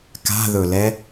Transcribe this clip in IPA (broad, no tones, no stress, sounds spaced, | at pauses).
k a̤ ð ɵ l ɛ